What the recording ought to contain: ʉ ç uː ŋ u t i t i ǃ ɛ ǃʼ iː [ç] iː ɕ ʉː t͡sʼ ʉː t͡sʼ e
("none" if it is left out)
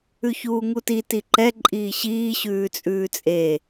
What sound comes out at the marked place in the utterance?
ɕ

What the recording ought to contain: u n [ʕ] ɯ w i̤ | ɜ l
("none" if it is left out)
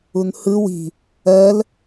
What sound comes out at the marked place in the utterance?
h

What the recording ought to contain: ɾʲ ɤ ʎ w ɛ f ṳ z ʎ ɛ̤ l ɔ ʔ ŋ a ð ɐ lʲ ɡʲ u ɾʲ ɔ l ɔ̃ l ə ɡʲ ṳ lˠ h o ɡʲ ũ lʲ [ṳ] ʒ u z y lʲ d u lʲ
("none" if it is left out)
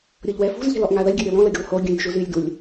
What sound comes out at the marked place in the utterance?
ṳ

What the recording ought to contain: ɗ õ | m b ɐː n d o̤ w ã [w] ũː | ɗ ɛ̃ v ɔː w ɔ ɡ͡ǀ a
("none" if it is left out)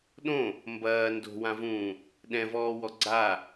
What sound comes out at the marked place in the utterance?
v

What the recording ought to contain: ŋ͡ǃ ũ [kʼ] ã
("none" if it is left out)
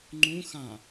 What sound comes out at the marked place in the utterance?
x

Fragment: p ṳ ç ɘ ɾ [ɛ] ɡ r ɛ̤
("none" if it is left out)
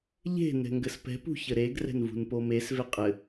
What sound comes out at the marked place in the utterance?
e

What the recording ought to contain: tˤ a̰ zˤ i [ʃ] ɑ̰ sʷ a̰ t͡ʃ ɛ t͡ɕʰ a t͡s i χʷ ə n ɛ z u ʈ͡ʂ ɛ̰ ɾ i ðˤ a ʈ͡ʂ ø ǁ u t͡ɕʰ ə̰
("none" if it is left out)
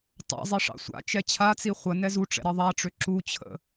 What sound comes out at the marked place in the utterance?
ʂ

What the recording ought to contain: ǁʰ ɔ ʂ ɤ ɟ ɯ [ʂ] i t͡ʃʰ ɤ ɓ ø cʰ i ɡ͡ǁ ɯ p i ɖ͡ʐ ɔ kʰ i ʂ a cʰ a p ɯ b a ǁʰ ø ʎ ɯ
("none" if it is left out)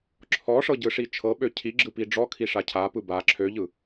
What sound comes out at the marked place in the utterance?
ʂ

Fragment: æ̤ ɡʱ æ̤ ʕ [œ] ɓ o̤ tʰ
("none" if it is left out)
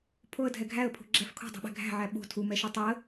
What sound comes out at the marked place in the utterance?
æ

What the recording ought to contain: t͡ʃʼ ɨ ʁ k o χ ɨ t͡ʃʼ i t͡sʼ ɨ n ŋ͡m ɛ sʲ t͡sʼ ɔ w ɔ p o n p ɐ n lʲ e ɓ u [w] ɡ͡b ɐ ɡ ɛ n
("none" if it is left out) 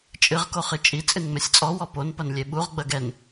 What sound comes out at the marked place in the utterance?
ʁ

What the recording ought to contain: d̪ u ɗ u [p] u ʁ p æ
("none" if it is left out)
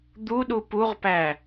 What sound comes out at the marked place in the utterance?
p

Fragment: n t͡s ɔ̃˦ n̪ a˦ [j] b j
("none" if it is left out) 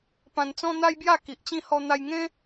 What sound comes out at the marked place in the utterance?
j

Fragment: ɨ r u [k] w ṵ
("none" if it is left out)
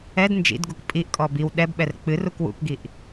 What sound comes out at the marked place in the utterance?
k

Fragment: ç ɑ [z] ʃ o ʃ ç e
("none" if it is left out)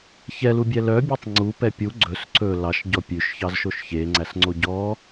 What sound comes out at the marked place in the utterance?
z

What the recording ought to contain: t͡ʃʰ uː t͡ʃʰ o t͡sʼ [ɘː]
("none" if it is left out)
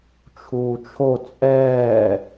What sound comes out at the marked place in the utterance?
ɛː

